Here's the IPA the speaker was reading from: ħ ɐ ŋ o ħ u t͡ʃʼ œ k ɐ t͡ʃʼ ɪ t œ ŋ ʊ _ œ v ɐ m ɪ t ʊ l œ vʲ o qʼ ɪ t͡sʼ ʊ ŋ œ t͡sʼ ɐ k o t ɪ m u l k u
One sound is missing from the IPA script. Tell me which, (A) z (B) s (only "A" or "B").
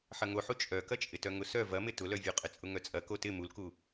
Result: B